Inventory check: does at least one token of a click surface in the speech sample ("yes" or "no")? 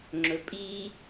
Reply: yes